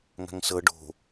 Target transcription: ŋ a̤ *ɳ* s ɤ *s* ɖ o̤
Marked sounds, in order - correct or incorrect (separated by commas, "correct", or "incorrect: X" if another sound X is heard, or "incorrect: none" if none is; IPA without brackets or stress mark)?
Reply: incorrect: ŋ, incorrect: none